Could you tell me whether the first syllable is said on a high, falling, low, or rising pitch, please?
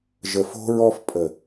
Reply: low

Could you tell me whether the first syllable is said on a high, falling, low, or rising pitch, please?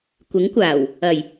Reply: rising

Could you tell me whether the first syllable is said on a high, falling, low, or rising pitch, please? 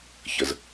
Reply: low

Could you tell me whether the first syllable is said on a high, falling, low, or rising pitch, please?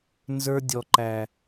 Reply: high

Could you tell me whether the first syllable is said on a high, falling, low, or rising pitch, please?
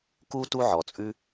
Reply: high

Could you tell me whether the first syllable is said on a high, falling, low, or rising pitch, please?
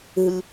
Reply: low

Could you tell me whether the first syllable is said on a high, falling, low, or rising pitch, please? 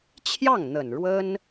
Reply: falling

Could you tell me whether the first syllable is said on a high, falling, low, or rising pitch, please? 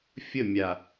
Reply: falling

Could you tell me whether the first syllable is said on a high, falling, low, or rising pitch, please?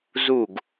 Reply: falling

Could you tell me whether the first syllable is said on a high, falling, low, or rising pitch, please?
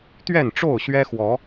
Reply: falling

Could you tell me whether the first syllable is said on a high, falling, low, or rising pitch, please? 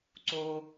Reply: low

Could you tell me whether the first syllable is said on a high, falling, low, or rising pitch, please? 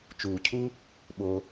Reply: low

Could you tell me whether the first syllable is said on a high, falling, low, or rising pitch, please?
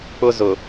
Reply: high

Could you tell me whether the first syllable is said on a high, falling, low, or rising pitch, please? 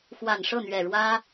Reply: low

